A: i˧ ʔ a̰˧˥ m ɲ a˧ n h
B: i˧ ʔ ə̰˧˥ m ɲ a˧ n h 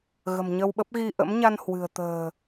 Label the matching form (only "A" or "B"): B